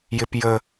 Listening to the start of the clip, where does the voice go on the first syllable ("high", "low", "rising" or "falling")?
high